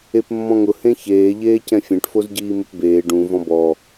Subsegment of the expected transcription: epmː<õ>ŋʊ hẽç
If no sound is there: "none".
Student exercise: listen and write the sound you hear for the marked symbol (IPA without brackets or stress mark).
ɔ̃